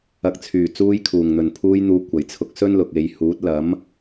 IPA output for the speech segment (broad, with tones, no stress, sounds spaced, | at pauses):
ɐ˨ k̚ t͡sʰ yː˨˩ t͡s uː˧ j kʰ uː˨˩ ŋ n̪ ɵ˨˩ n pʰ uː˧ j n̪ uː˨˧ kʷ ɐ˨˩ j t͡sʰ ʊ˧ k̚ s ɵ˥ n l ʊ˨ k̚ e˨˧ j h uː˨˥ t̚ l ɐ˨˥ m